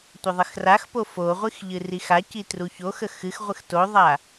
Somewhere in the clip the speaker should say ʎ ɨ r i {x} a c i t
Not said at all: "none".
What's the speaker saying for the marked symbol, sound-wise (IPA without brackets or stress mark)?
x